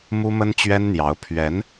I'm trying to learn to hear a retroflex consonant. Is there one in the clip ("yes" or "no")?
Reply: no